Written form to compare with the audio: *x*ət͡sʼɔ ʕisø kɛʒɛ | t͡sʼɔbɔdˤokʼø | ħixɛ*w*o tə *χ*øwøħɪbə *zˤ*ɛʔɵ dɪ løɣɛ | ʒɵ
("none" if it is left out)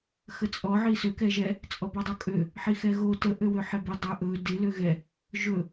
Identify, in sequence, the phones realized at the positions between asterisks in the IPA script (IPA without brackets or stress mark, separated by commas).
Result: x, ɣ, ʔ, dˤ